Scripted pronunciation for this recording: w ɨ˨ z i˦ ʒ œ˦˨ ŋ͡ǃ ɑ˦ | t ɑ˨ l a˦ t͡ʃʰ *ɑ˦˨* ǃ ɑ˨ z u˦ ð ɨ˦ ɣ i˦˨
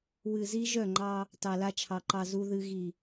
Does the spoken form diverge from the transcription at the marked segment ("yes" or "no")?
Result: yes